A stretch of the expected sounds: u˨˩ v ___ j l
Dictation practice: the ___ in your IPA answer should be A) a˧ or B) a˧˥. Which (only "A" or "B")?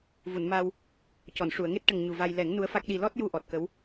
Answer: A